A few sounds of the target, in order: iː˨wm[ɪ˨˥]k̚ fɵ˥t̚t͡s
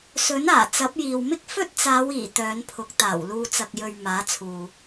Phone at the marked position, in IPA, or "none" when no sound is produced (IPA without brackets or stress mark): ɪ˥